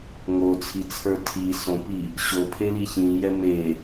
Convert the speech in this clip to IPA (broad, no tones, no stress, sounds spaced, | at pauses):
ŋ o t͡sʰ i t͡sʰ ə˞ tʰ i s õ p i | ɕ o pʰ e l i ç ĩ j ɛ m e